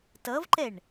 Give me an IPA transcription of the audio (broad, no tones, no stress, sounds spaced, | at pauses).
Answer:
t ʌ v ǃ ɛ ɳ